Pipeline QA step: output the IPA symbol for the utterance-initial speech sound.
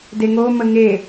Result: d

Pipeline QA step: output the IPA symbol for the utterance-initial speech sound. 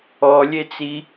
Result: ɔ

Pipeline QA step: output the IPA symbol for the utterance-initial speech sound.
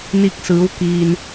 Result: n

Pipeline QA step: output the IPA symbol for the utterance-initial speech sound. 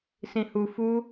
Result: s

